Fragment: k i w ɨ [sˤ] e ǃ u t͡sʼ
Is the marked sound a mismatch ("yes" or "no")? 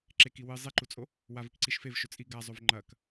yes